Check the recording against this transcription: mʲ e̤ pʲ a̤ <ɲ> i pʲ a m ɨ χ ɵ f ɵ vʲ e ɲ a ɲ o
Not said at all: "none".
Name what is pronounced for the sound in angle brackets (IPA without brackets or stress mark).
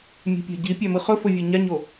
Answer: ɟ